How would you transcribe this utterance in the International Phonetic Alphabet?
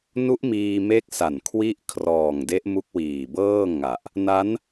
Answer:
nu˦˥ʔmiː˧me˦˥k̚ sa˨˩nkʰwi˦˥ʔ kʰrɔː˨˩ŋde˦˥ʔ mu˦˥k̚wiː˨˩bɤː˥˩ ŋa˨˩ʔ | na˦˥n

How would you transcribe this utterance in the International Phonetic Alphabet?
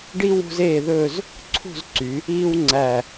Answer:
ɖi˥ wṳ˥z eː˥˧ðɵː˥˧z | ǀʰṳ˥˧zǀy˩˧ | iː˥wŋ͡ǀæ˧˩

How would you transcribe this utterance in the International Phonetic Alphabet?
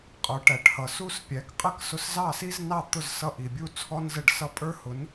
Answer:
qʼə˞˩˥ʈæ˩ʈhʌ˩ su˥˩spʲæ˩˥kqʼə˥˩k sʊ˧szɑ˥˩si˥znɑ˥˩ t̪ʊ˥˩z sʌ˥˩ ʔi˩bʲu˥˩ t͡sʰɔ˥nzə˥˩ɖsʌ˥ pʼə˞˥hʊ˩˥n

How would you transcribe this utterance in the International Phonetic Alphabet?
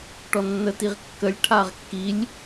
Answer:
ʈɔnːətiʁkːəlʲ ʈʰaʁkːilʲ

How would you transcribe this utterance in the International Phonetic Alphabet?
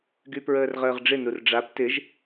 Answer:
ɡypɹəːrʁəːʁɖ͡ʐɪ nurɖ͡ʐap tɪʒ

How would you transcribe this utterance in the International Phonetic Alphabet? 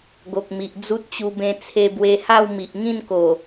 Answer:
ɡo˨k̚ mi˨ʔ d͡zu˦t̚t͡ɕu˧bẽ˧ t͡sʰe˧bwe˧ha˥˧w mi˨ʔŋĩ˥˧nko˨˩

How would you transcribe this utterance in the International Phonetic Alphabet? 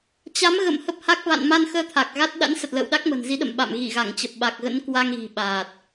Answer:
t͡ɕa˨˦mɣə̰˧˨m hə˦˥p̚ha˦˥k̚ va̰˧˨nma˧nxəː˧ t̪ʰa˨˩k̚ɣa˦˥t̚ ɗa̰˧˥nsə˨˩t̚ lə̰ː˧˨wɗa˦˥k̚mə̤˨˩n zi˨˦ɗə̰˧˨m ɓa̰˧˨m ɣi˧˩ɣa˧˩ŋt͡ɕə˨˩p̚ ɓa˨˩k̚ɣə̰˧˥n kwa˧ŋɣi̤˨˩ɓaː˨˩t̚

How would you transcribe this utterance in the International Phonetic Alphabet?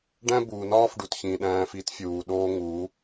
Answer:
ɖæ̃˦buː˨nɒː˦fɖu˨t çĩ˨ɗæ̃ː˧f i˦tfʲuː˨ɗoː˦ŋu˨˦

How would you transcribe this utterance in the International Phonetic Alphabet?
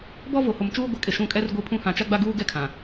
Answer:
bɔ˦vo˨ho˨mt͡ʃuː˦ ɡʷɛ˨kʼɪ˨ ʃũ˦˨kʼɛ˦rɡʷi˦˨pʰũ˦ hã˨ t͡ʃa˦ɡ͡ba˦ ɡuː˦ɡɛ˦ kʰã˨

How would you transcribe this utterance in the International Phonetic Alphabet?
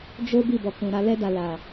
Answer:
d͡ʒo˦ bi˦˨bɔ˨kũ˨ ɾa˧lɛ˦da˧ la˨

